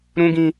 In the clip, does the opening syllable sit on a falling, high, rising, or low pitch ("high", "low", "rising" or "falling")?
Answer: high